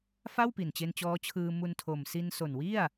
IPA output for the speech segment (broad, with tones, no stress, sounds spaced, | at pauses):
f a˥˩ w p i˨˩ n t͡ɕ e˧ n t͡ɕ ɔː˦˥ t͡ɕʰ ɯː˧ m u˧ n tʰ o˨˩ m s i˧ n s o˨˩ n w i˥˩ a̯